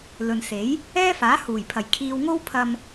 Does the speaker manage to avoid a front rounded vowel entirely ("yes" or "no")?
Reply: yes